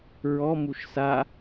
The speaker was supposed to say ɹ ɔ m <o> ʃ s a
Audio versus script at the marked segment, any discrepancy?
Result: yes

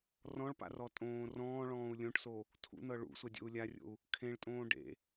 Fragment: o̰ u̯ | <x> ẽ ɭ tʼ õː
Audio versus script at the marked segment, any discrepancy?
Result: yes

